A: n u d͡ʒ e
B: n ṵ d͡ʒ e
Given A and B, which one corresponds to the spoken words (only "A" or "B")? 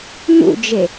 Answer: B